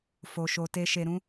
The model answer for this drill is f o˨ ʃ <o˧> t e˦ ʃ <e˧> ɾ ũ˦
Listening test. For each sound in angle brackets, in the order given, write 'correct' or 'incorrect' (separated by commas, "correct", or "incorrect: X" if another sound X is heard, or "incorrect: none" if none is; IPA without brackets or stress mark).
correct, correct